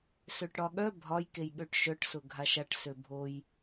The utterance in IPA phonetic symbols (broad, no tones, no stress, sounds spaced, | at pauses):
s ø ʈ ɽ ɒ ɠ œ bʱ ɒ j k e j ɠ ø ʈ ʃ œ ʈ s ʊ ɡʱ a ʃ a ʈ s ø bʱ o j